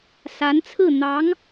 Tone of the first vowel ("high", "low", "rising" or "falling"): rising